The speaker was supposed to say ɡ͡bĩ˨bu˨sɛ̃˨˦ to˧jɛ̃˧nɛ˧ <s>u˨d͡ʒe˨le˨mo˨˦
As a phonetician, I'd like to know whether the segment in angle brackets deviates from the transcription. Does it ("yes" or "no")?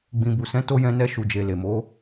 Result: yes